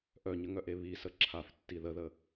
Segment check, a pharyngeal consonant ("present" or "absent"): absent